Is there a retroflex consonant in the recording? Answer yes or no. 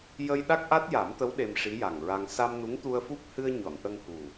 yes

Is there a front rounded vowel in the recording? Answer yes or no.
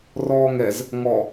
no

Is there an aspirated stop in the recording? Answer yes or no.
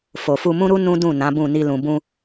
no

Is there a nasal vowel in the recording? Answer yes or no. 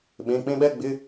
yes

